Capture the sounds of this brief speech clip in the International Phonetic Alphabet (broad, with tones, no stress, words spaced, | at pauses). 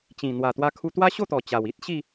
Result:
t͡ɕĩ˨˩ n̪wa˨˩t̪wa˧ kʰu˧t̪wa˦ ɕo˥˧t̪ɔ˨˩ t͡ɕa˨˩wi˦t̚ɕi˥˧